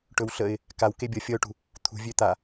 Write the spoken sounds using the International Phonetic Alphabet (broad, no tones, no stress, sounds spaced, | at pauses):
ʈ ɵ w ɬ ə ɪ̯ | k a w k e bʲ ʌ fʲ ʌ ʊ̯ ʈ ṳ | t̪ʰ ṳ vʲ ø t̪ a